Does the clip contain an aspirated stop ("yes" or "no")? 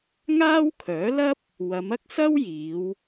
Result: yes